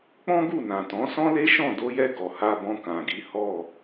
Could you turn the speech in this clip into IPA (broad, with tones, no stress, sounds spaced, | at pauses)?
k͡p ɔ̃˦ ɡ u˦˨ n ã˨ t ɔ̃˨˦ s ɔ̃˦ l e˦ ʃ ɔ̃˦˨ d o˧ j ɛ˧ ɡ ɔ˨ h a˧ b ɔ̃˧ k ã˨ ɡ i˨˦ h ɔ˦˨